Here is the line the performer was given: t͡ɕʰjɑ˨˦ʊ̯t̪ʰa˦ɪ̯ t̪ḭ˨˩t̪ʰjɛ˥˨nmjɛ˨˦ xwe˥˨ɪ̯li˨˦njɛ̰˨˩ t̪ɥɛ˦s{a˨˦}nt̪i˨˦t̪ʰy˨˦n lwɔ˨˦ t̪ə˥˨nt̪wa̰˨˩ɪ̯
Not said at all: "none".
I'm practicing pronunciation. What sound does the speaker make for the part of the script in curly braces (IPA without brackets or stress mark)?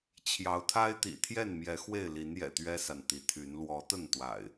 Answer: a˨